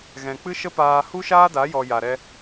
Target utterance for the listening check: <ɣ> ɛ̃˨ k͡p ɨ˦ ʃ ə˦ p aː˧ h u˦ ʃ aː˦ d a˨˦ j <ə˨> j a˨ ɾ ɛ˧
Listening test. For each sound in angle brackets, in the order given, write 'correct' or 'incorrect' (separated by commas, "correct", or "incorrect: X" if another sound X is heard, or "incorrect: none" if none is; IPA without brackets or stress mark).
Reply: correct, incorrect: ɔ˨